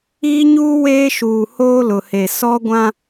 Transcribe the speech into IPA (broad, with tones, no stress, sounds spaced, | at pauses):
iː˦ ɲ uː˦ w eː˦ ʃ uː˨ h oː˦ l ʊ˨ h e˨ s ɔ˦ ɡʷ ã˦